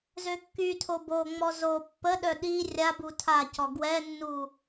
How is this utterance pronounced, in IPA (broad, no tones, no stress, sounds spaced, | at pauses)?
z ø kː y tʰ o b o ŋ͡m ɔ z o pː ə ɗ œ ɗ i rʲ a b u tʰ a c ɔ ɡ w ɛ nː u